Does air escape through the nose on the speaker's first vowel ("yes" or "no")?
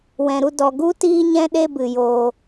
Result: yes